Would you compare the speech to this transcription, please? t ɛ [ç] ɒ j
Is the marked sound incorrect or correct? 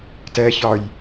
correct